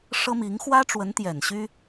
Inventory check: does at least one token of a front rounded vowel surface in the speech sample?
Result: yes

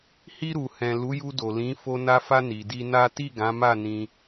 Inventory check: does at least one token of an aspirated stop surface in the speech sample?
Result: no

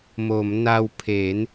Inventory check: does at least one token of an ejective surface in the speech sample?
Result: no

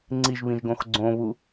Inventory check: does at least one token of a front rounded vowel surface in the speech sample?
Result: no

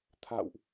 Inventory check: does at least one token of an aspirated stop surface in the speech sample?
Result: yes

